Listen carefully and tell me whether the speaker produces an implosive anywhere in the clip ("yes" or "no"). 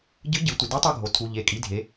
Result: no